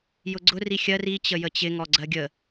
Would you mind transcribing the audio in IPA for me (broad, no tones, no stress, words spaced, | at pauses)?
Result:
jʊɡ͡ǀʊ rixʲɜr i t͡ɕəjət͡ɕɪ ŋɔɡ͡ǀɜɡʲə